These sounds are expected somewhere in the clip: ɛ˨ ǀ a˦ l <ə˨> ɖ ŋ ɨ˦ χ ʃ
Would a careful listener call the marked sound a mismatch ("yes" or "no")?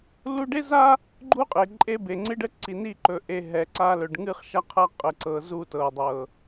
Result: yes